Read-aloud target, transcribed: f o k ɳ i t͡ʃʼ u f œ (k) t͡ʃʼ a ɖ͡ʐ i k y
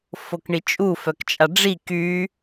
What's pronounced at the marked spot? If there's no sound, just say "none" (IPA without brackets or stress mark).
k